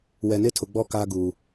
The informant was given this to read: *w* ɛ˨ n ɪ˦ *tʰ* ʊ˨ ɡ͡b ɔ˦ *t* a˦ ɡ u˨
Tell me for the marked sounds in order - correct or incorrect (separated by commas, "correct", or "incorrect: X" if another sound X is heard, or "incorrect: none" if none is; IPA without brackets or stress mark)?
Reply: correct, correct, incorrect: k